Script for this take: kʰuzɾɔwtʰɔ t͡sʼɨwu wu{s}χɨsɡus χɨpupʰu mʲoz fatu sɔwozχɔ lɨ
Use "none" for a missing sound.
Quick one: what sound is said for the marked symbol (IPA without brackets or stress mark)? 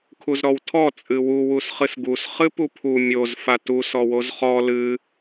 s